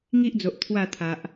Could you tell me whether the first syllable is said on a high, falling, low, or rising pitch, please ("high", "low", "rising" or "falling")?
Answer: high